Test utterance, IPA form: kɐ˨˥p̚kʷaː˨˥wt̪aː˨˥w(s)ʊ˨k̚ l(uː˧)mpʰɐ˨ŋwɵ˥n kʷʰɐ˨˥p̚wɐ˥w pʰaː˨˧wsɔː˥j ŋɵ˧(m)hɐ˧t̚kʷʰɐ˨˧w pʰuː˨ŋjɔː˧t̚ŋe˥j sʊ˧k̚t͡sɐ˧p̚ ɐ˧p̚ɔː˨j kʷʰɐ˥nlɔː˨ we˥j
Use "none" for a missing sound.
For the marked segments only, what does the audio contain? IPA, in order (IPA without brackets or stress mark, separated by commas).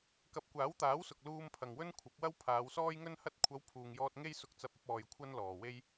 s, uː˧, n